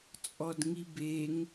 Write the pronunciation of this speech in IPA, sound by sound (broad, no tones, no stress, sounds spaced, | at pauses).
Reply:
t͡sʼ ɔ d ŋ i b e ŋ